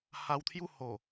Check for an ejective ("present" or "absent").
absent